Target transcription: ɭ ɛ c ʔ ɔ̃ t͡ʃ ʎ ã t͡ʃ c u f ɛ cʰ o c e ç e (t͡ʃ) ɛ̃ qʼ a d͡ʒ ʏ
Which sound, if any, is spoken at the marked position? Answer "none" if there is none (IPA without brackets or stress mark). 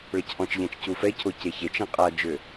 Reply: t͡ʃ